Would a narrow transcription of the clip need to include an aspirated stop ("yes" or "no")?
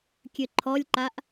yes